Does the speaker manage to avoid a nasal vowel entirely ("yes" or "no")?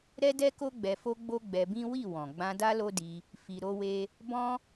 no